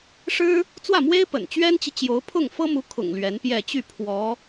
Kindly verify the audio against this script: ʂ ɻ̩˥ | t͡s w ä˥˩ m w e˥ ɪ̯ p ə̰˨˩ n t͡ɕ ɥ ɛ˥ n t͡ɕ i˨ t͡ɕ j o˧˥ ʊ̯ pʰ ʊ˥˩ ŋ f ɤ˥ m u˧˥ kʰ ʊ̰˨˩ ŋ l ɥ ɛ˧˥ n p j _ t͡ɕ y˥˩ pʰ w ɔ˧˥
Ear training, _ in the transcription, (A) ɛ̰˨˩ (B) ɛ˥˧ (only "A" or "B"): B